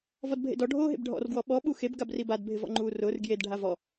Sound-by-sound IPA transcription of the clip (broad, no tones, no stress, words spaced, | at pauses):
vɔdbʱḛdɔ ɖʱoːɦḛbɖʱɔ̰r ɡwɔɓɔ ɓuxeb ɡabribad bʱɪvɔ̰ŋ͡ǃuːrʊːr ɡjed ɖʱavɔ